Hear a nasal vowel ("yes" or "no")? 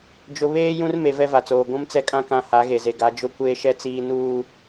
yes